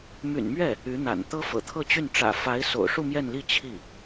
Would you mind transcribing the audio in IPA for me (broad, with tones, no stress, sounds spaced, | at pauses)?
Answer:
m y̰˨˩ n m ɥ ɛ˥˩ | y˧˥ n̪ a̰˨˩ n t̪ ɤ˥ f ɤ̰˨˩ t̪ʰ ɤ˥˧ t͡ɕ y˥˩ n ʈ͡ʂ ä̰˨˩ f a˧˥ ɪ̯ s o̰˨˩ ʊ̯ ʂ u˥˧ m j ɛ˥˧ n l i˥˧ t͡ɕʰ i˥˩